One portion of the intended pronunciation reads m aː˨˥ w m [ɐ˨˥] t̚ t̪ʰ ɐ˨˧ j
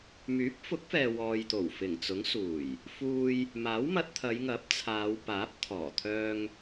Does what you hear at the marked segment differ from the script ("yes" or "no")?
yes